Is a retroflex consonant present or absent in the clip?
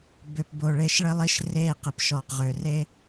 present